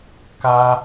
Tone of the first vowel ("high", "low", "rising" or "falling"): high